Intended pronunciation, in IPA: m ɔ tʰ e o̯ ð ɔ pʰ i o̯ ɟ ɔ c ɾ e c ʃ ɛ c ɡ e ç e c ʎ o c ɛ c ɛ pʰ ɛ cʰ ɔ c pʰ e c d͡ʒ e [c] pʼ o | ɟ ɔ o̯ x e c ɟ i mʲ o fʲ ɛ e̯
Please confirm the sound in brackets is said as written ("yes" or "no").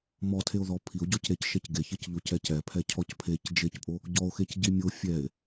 yes